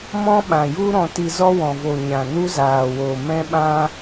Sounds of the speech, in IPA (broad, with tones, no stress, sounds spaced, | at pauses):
m ɔ̃˦ ɓ ã˨ j u˦ ɾ ɔ̃˧ t i˧ z ɔ˦ w ɔ̃˨ v o˨ ɲ ã˨ n u˦ z aː˨ w o˨ m ɛ̃˦ ɓ ã˦